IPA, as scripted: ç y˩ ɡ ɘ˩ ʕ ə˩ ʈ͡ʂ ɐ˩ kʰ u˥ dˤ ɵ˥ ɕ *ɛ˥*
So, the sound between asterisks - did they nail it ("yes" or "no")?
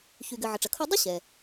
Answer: no